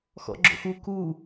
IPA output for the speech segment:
x ɔ̰ ɡ͡ǁ o̰ x u k u

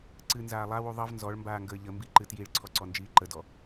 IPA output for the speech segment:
ǀ ɨ n z aː lˠ a w u ðˤ ʌ v n z ɔ ɭ m b aː ŋ ɡ əː ʎ ə m b i ǃ ɨ t j i ɭ ǀʰ ɔ ǀ ɔ n d͡ʒ iː ǃ ə d ɔ

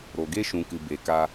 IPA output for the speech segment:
ɾ o˨ ɡ e˦ ʃ ũ˨ k ɨ˨ b e˨ k a˧

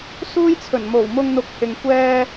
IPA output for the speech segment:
s uː˥ j t͡sʰ ɵ˨˩ n m o˨˩ w m ʊ˧ ŋ n̪ ʊ˨˥ k̚ h ɪ˨ ŋ kʷ ɛː˧

